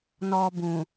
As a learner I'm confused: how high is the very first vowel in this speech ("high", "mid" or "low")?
mid